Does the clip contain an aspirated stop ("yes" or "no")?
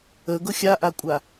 no